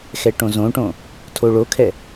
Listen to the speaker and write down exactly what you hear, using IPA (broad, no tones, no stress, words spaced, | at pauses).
xɛʈõzõʈõ | tʰoɭokʰɛ